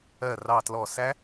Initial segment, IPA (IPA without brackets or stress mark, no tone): ɜ